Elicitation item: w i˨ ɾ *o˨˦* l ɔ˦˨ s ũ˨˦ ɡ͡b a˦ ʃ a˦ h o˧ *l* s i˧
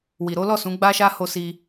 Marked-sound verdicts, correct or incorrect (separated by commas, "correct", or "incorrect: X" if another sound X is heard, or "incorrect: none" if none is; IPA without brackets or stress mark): correct, incorrect: none